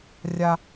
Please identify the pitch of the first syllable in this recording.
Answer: high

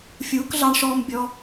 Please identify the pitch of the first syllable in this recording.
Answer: rising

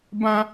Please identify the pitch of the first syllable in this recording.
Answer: high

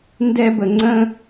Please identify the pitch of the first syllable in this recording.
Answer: high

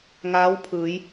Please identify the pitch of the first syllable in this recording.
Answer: rising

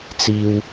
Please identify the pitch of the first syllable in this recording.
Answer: low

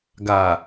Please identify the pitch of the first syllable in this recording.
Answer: low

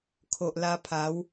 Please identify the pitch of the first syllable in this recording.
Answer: low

